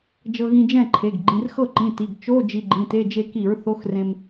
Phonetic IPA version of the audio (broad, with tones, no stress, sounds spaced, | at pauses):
d͡ʒ ɤ˧ ɣ ĩ˧ d͡ʒ ɛ̃˥˨ ǃʰ e˩˧˩ ɡ ɡ͡ǃ ĩ˩˧˩ r x ɤ˥˨ ǃ ĩ˩˧˩ t i˩˧˩ ɡ t͡ʃ o˧˥˧ d͡ʒ i˧ ɡ͡ǃ ĩ˩˧˩ t e˧˥˧ d͡ʒ e˧ k i˧˩˧ ɹ θ o˧˥˧ x r ẽ˧ m